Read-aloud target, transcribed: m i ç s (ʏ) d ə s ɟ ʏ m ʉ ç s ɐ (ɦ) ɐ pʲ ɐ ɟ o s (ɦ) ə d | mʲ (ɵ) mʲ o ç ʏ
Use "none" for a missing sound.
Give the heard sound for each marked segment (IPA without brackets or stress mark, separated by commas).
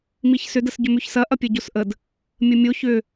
ʏ, ʔ, ʔ, ə